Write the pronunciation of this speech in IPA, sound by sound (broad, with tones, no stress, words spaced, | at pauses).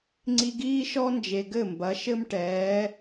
ŋ͡ǀi˧ɡiː˦ʃɔ˦nd͡ʒe˨ ɡɘ˦˨mbɐ˨˦ ʃɘ˦mʈɛː˨˦